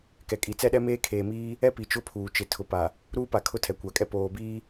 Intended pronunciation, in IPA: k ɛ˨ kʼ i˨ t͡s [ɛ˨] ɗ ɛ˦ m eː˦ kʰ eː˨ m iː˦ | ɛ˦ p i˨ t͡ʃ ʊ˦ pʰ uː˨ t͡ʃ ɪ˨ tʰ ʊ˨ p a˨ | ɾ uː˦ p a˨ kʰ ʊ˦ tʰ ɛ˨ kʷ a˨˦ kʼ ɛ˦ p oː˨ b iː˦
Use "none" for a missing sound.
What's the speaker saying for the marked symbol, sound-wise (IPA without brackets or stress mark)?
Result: ɛ˦